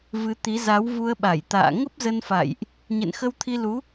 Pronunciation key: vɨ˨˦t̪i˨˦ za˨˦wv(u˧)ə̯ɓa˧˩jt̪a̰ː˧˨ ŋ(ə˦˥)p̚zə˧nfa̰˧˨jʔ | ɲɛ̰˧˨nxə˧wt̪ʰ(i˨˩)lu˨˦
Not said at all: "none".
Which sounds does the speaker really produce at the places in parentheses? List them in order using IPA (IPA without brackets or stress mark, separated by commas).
u˧, ə˦˥, i˧